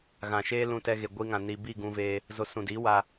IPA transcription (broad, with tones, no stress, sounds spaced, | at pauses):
ɣ ã˨ ʃ eː˦ l ũ˧ t ɛ˧ ɣ e˨ ɡʷ i˧ ŋ ã˨ n i˨ b i˦˨ ɡ ũ˧ v eː˧ | z o˧ s ũ˨ d i˨˦ w a˧